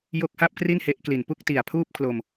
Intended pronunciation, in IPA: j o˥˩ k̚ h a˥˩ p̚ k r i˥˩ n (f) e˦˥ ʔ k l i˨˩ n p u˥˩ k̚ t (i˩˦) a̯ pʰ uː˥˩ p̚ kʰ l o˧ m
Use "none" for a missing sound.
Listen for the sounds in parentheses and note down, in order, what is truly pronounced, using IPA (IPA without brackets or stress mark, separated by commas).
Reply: h, i˨˩